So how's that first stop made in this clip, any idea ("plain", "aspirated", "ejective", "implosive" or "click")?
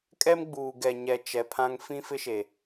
ejective